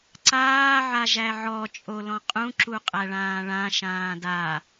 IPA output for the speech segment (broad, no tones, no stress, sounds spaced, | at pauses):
ǀ aː ʕ a ʒ æ ʕ ɔ t͡ʃʼ o l ɔ̃ qʼ ũ ǁ u qʼ æ ɭ ãː ɭ ã ʃ ãː d a